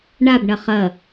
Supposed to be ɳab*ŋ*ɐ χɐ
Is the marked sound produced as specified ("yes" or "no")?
no